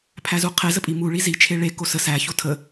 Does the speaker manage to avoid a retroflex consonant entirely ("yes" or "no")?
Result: no